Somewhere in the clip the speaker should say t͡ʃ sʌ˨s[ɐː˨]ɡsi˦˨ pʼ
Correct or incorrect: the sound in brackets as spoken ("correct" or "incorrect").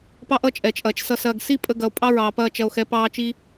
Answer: correct